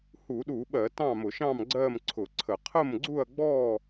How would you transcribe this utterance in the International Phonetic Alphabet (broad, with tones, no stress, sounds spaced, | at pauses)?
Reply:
h u˧˩˧ ɗ u˧˩˧ ɓ ɜ˧˩˧ t ɑ̃˥˨ m ʊ˧˩˧ ʃ ɑ̃˥˨ m ɡ͡ǀ ɜ˥˨ m ǀʰ ʊ˧˩˧ ǀʰ ə˧˩˧ qʰ ə˥˨ m ɡ͡ǀ u˥˨ ɐ̯ ɡ͡b ɔ˥˨